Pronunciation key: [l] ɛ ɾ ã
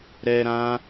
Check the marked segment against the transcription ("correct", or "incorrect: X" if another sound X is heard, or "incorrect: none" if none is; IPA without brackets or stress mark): incorrect: ɾ